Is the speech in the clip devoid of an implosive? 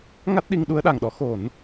no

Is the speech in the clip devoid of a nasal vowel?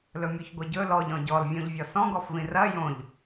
no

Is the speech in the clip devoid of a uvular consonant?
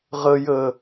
no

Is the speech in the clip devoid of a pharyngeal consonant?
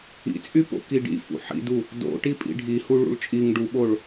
no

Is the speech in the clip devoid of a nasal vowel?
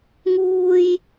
yes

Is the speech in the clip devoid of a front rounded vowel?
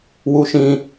yes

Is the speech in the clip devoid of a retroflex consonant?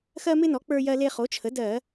yes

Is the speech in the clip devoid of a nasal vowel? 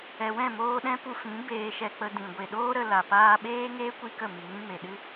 no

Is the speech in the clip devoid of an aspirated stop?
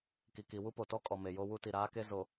yes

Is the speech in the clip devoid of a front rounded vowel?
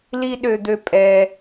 no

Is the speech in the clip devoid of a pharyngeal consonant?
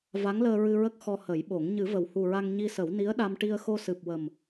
yes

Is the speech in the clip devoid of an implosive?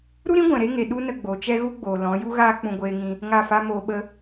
no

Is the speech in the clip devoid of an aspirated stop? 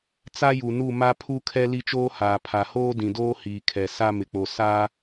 no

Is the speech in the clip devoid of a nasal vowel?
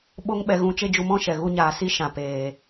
no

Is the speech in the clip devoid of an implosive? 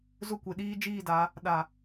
no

